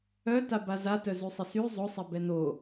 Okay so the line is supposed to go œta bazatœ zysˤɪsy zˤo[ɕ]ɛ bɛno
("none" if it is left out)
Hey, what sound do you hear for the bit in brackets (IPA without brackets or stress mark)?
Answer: sˤ